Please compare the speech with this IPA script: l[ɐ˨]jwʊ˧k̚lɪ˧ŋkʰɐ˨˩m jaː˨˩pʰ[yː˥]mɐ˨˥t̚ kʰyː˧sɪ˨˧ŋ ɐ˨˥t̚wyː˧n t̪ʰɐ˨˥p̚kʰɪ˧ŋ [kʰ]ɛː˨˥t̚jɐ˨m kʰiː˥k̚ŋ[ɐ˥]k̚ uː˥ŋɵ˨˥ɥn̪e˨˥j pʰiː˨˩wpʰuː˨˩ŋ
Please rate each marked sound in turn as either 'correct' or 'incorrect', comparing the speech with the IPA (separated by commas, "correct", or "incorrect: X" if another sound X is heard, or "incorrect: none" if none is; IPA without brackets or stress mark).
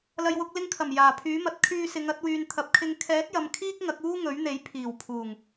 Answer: correct, incorrect: yː˨˥, correct, incorrect: ɐ˨˥